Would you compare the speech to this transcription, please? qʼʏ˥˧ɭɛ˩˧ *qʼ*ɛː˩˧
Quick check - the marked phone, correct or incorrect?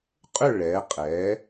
correct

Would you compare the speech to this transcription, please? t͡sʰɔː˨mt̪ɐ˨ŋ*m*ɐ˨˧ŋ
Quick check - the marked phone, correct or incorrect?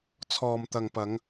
incorrect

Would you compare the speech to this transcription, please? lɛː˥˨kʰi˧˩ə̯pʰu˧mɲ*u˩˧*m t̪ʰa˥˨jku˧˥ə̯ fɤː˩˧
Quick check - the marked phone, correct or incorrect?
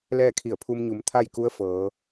correct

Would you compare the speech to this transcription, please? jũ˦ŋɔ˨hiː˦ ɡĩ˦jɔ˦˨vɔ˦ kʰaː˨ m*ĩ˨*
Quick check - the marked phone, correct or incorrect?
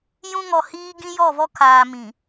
correct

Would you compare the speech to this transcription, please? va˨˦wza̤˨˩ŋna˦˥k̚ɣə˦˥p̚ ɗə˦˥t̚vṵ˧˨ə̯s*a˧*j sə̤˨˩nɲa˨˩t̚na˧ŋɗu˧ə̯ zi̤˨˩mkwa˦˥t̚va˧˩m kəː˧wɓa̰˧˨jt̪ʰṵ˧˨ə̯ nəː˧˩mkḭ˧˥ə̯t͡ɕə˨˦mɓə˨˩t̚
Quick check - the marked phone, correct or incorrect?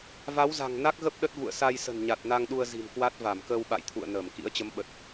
correct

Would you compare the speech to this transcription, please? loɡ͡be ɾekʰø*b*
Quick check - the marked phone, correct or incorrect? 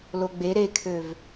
incorrect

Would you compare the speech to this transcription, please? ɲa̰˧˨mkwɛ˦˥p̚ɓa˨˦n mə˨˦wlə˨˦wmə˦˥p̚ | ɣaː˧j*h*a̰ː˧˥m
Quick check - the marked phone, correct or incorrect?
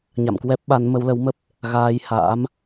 correct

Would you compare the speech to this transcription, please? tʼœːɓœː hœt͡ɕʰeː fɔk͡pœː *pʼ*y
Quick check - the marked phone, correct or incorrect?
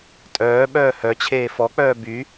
incorrect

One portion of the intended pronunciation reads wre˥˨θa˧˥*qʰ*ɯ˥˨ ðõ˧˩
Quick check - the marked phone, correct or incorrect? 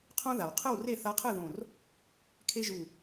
correct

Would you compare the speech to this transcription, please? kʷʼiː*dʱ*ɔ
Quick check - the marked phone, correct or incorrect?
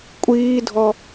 correct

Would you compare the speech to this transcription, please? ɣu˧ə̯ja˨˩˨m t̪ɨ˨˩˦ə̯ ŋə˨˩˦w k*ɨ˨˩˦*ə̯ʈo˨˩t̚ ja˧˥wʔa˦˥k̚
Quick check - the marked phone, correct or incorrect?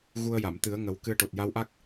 incorrect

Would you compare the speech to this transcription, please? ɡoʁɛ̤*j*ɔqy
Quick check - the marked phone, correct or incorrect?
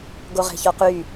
incorrect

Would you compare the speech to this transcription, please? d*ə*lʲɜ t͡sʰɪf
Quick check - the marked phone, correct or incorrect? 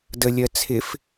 correct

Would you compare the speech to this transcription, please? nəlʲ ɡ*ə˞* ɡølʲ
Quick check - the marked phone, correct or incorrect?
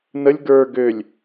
correct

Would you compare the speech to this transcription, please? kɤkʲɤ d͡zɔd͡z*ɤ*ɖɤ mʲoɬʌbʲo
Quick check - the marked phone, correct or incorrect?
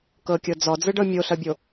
incorrect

